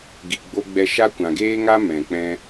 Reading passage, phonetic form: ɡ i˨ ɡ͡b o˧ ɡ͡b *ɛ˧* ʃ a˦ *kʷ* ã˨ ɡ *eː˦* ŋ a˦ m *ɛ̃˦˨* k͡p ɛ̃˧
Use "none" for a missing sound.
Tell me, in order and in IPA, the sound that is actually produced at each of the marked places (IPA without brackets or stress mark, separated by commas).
ɛ˧, kʷ, eː˦, ɛ̃˨